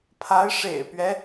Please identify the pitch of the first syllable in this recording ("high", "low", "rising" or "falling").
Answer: rising